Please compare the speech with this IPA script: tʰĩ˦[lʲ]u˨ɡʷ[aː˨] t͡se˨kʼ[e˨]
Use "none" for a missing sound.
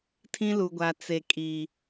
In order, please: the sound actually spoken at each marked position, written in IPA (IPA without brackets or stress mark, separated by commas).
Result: l, a˨, i˨